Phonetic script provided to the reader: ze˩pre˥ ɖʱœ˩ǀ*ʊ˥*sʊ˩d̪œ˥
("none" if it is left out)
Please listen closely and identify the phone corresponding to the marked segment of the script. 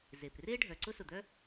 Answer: ʊ˥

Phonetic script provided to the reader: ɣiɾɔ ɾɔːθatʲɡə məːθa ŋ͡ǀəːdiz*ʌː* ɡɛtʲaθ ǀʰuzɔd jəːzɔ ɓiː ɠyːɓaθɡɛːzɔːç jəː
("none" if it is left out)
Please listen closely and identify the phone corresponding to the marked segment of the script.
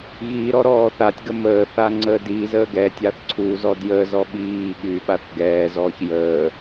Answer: əː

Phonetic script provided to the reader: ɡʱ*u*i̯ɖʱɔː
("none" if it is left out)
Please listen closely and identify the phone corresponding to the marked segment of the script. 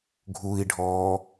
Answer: u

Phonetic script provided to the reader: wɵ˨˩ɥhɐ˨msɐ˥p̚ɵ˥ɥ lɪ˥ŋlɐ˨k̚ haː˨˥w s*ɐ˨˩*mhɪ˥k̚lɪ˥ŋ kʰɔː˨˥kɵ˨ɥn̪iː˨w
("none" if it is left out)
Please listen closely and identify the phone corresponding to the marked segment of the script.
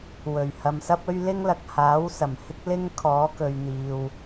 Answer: ɐ˨˩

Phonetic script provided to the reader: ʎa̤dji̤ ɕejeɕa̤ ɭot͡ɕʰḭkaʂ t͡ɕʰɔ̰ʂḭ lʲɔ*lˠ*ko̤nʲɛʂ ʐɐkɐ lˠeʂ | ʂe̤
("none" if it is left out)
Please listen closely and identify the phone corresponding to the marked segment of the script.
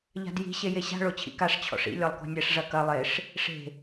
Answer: lˠ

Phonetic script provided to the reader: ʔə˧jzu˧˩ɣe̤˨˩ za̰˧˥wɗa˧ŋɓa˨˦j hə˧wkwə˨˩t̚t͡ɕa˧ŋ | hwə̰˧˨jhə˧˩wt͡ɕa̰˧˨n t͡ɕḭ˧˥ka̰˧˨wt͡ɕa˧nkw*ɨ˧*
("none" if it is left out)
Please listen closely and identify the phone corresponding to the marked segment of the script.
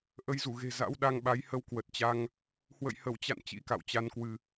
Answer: ɨ˧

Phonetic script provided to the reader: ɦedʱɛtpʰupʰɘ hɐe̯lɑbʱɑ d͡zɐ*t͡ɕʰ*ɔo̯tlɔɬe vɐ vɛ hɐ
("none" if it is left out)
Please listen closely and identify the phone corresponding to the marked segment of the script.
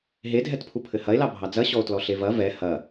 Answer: ɕ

